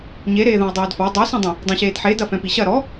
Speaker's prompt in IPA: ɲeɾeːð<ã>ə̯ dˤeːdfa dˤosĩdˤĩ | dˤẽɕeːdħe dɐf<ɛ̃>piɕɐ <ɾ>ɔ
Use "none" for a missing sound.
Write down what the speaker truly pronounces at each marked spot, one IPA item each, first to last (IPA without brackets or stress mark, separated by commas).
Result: ã, ɛ̃, ɾ